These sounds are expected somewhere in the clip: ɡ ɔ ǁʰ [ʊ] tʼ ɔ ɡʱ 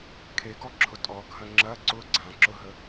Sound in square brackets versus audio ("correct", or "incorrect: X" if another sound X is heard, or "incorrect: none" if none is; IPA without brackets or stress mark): correct